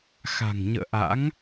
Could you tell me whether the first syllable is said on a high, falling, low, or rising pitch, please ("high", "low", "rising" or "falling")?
low